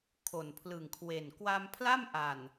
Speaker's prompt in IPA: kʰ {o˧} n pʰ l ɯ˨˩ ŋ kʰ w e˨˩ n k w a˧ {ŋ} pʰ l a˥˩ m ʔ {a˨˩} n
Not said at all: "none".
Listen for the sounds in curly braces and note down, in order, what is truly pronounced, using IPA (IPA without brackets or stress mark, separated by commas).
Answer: o˨˩, m, a˨˩